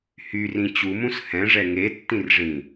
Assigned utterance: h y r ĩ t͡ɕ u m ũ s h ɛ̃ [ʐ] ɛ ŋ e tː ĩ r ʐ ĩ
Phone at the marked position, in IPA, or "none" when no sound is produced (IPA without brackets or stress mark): ʐ